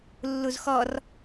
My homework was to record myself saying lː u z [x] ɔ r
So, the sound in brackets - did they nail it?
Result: yes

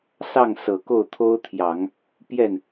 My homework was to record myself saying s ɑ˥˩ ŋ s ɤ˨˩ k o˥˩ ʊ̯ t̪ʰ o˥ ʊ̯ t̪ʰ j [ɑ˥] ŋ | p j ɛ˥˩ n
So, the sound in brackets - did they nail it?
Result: no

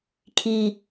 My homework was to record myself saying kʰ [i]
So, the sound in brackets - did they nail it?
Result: yes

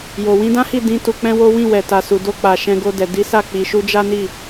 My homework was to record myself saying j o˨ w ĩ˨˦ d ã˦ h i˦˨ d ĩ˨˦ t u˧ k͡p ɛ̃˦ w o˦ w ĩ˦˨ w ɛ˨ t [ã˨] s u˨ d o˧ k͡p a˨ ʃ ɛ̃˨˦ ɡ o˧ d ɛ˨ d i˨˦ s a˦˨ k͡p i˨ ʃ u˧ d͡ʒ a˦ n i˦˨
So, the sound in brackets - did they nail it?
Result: no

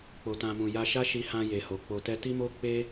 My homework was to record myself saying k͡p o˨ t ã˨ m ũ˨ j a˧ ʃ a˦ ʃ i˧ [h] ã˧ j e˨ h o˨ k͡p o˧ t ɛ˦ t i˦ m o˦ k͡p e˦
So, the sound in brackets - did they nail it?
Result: yes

